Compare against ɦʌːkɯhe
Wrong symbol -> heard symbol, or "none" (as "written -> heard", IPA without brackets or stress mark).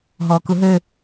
h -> ɦ